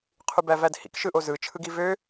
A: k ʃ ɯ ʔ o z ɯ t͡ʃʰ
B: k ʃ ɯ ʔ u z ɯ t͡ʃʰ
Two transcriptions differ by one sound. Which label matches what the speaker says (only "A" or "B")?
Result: A